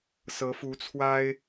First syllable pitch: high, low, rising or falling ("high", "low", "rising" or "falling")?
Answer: rising